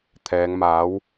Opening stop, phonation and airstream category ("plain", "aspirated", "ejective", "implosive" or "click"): aspirated